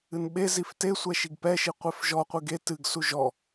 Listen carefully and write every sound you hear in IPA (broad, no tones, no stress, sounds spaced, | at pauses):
ɨ n ɓ e z i f t e sʷ ɛ ʃ i ɡ p ɛ ʃ i qʷ e f ʒ ɔ qʷ ɨ ɡ e t ɨ ɡ s u ʒ ɔ